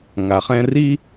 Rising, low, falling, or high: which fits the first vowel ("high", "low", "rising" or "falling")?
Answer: low